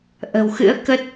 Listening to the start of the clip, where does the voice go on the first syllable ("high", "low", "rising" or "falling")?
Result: low